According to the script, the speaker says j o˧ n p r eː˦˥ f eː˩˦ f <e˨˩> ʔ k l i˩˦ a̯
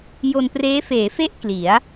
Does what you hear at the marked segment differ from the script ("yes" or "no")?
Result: yes